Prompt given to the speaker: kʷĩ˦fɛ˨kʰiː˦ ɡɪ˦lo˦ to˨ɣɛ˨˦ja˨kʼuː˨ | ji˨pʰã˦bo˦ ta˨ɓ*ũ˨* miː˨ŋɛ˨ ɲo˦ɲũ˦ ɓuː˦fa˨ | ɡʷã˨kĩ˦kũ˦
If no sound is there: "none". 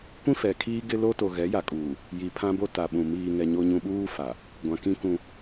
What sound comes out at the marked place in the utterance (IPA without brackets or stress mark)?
ũ˨